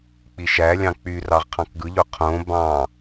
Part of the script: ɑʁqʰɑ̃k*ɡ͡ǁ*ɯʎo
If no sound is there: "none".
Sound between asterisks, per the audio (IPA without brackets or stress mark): ɡ